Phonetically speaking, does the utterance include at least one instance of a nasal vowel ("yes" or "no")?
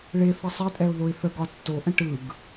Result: yes